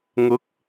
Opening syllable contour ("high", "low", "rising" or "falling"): rising